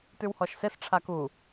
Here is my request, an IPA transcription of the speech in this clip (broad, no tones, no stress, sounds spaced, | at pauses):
t ʉ w h ɔ ʃ s e s ʈ͡ʂʰ a k u